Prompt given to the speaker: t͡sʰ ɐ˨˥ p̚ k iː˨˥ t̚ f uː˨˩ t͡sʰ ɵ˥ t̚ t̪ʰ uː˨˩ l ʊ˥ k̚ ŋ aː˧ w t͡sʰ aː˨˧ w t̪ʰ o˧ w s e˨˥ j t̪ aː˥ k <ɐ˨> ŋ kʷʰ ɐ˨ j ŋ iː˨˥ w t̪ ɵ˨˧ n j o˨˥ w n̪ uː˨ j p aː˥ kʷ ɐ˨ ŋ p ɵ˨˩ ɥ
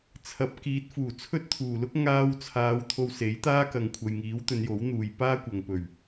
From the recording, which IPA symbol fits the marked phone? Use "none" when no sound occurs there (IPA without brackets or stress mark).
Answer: ɐ˨